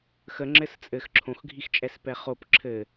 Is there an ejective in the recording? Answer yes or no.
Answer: yes